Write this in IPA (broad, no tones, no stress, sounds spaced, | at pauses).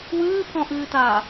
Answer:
w ɨː pʰ ɔ̃ ʔ ɨː t aː